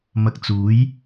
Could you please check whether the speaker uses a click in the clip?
no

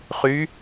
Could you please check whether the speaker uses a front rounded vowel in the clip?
yes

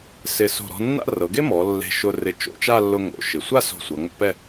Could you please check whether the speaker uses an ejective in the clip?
no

